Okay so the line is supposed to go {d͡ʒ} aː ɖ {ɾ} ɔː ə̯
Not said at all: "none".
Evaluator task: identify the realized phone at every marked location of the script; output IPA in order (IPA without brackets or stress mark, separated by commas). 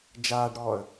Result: d͡ʒ, ɾ